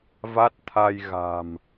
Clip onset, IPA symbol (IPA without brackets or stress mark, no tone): v